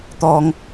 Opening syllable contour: low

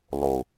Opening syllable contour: low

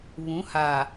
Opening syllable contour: rising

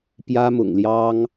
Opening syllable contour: high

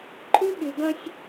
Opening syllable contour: high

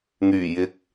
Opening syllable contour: low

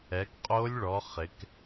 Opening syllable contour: rising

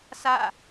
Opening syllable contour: falling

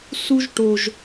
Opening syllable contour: high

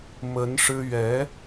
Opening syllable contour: rising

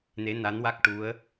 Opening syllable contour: rising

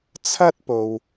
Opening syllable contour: high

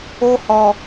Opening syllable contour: high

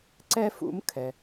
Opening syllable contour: high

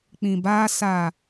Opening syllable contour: low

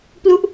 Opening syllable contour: falling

